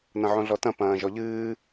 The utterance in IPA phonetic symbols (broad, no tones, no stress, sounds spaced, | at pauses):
n ɐ̃ ʕ õ ɮ ɔ t ɐ̃ p ɐ̃ː ʒ ɔ ʎ ɨː